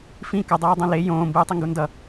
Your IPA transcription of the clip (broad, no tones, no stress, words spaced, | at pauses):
fĩ kʌ dˤɛːdˤõle jõː mbɯːtˤiŋɡundʌ